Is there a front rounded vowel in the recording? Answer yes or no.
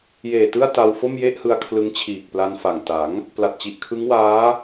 no